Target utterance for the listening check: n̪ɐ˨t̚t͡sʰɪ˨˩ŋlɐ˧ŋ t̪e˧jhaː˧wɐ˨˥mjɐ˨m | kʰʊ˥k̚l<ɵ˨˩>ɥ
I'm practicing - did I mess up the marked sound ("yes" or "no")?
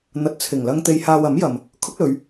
yes